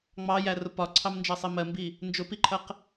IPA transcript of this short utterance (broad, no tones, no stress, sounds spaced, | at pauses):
ŋ͡m ɑ j æ r ʊ p ɒ ǀʰ ɑ m n d͡ʒ ɜ sˤ i m ɜ m b i | n d͡ʒ ʊ p i ǃʰ ɜ q